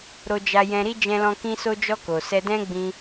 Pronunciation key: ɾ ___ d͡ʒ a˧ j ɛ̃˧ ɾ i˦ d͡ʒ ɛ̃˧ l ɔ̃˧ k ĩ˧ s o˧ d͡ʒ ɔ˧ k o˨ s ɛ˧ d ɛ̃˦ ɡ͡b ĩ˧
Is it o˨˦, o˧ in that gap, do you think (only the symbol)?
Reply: o˧